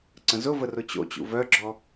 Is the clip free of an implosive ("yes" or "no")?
yes